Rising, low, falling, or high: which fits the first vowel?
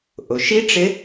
low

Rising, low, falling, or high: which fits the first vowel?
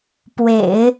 low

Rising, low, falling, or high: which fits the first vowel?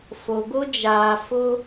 low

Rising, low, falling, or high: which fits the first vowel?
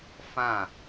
falling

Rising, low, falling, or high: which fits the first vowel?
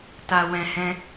low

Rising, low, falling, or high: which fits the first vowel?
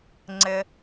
low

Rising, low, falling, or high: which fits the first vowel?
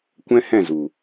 high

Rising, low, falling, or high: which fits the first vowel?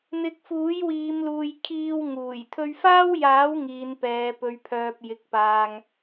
rising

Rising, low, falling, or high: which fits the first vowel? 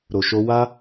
low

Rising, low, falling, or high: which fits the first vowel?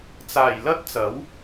low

